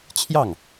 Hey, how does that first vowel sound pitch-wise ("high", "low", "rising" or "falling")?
falling